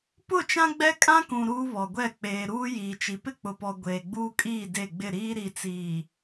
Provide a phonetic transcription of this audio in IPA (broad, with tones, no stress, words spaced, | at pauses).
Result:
pʊ˦˨t͡ʃã˦ ɡ͡bɛ˦kʼã˦kũ˨ ɾuː˦βɔ˨ɡʷɛ˦˨ k͡peː˨ɾuː˦ jiː˨t͡ʃi˨ pɪ˦k͡pʊ˨pɔ˨ ɡʷeː˨ɡ͡buː˦kʼiː˦˨ de˦˨ɡ͡bɪ˦˨ɾiː˦ ɾi˨t͡siː˨